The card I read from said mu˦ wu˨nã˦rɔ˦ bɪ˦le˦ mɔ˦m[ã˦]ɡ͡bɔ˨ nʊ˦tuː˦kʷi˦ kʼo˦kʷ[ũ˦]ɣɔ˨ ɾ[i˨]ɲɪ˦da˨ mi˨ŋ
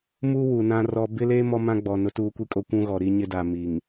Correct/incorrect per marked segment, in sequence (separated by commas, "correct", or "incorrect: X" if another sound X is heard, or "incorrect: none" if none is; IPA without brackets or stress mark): correct, correct, incorrect: i˦